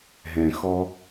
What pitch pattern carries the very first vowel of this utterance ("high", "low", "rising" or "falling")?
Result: low